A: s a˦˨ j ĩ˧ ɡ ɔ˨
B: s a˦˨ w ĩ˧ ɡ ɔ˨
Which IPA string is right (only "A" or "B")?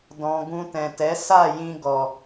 A